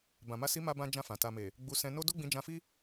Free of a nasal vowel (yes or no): no